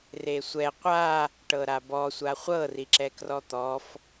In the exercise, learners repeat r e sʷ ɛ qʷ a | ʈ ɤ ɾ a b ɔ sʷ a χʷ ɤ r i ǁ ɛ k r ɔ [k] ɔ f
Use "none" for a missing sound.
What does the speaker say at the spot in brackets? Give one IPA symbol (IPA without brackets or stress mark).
t̪